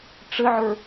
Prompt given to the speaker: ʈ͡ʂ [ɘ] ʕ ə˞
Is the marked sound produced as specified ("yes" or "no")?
yes